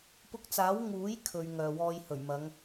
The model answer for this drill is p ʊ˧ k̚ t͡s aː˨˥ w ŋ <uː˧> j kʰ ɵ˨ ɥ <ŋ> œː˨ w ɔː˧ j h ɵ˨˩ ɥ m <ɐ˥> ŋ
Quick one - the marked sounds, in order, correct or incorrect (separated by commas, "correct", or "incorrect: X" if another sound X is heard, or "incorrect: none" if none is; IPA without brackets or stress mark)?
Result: incorrect: uː˨˥, correct, incorrect: ɐ˨˧